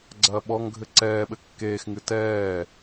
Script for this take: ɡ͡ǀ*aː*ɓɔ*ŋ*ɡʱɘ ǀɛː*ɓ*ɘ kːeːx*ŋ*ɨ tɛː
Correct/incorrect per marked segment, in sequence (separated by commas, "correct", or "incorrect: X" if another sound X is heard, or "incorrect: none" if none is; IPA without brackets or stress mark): incorrect: ɐː, correct, correct, correct